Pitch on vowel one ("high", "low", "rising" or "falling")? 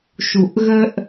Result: low